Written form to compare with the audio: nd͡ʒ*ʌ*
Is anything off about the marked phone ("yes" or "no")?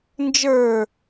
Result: yes